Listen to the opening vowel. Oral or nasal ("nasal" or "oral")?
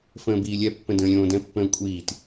nasal